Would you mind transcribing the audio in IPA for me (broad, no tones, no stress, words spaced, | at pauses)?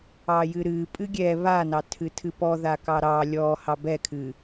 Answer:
ɑjɨɾɨ pʼɨɡʲɛ βanɑtʰɨtʰɨ pɔða kɑɾɑ lʲɔ hɑbɛkʰɨ